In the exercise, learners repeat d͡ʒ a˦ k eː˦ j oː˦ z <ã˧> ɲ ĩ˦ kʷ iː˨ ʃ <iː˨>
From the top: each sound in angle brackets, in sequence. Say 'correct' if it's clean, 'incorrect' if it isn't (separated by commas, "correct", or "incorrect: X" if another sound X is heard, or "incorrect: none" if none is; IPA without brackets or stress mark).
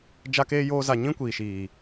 incorrect: a˧, correct